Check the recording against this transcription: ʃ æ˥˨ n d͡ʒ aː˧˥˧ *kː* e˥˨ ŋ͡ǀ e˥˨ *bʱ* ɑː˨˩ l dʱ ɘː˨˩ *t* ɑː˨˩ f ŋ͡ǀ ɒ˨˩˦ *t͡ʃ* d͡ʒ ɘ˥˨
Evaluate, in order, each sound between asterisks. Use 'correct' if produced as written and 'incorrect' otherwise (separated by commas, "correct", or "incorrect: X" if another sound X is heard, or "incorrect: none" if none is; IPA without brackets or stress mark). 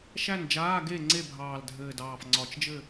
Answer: incorrect: ɡ, correct, incorrect: d, correct